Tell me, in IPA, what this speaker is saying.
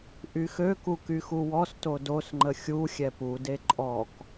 ʔ y x ø k u k y x u w ɔ s t o d o s ŋ͡ǃ ə xʲ u xʲ ɛ p u d e ǃʼ ɔ k

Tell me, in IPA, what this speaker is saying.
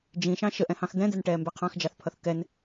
d͡ʒ ĩ ʃ ɑ̃ ʃ ə ʔ ɛ̃ h ɑ̃ x d̪ ɛ̃ d̪ ɛ n ʈ ɛː m b ɛ qʰ ɑ̃ x d͡ʒ ɑ θ pʰ ʌ θ k ɛ n

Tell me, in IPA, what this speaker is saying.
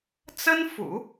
t͡s ə˥ n f ṵ˨˩˦

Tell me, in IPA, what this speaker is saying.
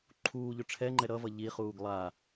ǃʰ uː ʎ ɵ ʈ͡ʂʰ ɛ ŋ͡ǃ ɛ ɾ ʌ v ʌ ʎ i χ uː ɡ lˠ a

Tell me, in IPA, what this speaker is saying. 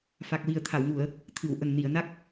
f a˨˩ k̚ w i˨˩ ə̯ t̪ʰ a˨˩˨ w ŋ u˨˩˨ ə̯ | t̪ʰ ɨ˨˩˨ w ʔ ə˨˩ ŋ n i˨˩˨ ə̯ n a˦˥ k̚

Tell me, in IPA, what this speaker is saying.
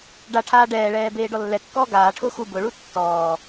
ɖ a ʈʰ aː ɖ ɛː ɭ ɛː b eː ɖ ɔ lː ɛ kː ɔː ɡ aː ʈʰ ʊː x u b ʊ ɭ u tː ɔː

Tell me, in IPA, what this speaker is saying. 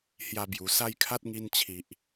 h j a˥˧ b j u˧ s a˥˧ j kʰ a˦ t̚ ŋ i˧ n t͡ɕʰ i˨ ʔ

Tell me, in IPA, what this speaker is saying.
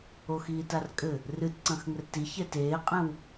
o x iː t a r kʼ ɘ | r ɨ t ǀ ɐ̃ x ŋ ɘ r t i ç ɛ t eː qʼ ɛ̃ w

